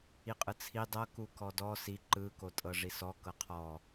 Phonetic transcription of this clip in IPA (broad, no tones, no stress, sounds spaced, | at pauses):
i qʼ ɯ t͡sʰ i dˤ ɤ k u k ɔ d ɔ s i ǃ ɯ k o tʼ ɤ ʐ i s ɔ k ɤ qʰ ɔ